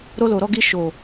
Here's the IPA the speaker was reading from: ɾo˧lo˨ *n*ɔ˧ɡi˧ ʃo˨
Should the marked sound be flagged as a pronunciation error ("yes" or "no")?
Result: yes